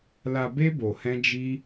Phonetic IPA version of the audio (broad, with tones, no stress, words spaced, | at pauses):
la˧be˦ bo˧hɛ̃˦d͡ʒi˦